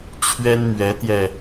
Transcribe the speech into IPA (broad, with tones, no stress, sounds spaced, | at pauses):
t͡ɕʰ ɥ ɛ˥ n m ɥ ɛ˧˥ t̪ j ɛ˧